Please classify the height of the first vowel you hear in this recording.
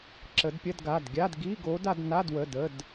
mid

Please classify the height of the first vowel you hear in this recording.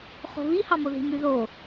mid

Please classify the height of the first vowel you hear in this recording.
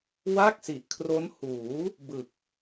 low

